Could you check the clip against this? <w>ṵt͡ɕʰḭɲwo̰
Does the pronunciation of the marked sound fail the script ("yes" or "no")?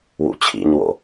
no